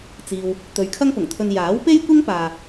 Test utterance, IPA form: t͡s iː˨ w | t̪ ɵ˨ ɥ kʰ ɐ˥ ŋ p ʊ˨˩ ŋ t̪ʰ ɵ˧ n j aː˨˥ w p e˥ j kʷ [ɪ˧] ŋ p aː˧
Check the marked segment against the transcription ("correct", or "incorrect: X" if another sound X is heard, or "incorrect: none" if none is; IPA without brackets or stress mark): incorrect: ɪ˥